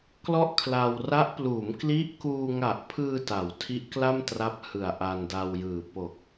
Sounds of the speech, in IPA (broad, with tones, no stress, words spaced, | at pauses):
klɔ˥˩ʔkʰla˧w ra˦˥ʔpluː˩˦m kli˦˥ʔkuː˧ŋa˨˩ʔpʰɯː˧ ta˩˦wtʰi˦˥ʔkla˥˩mtra˦˥p̚ hɯ˨˩a̯ʔa˧nda˧wjɯː˨˩ po˨˩k̚